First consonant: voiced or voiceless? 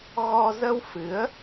voiced